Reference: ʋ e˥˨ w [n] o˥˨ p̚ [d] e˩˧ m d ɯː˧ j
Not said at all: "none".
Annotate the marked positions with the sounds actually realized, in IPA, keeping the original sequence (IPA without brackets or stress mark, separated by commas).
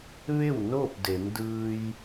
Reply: n, d